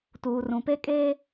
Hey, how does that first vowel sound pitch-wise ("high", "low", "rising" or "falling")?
low